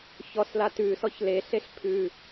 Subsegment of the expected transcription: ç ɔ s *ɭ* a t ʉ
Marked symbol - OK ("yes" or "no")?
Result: no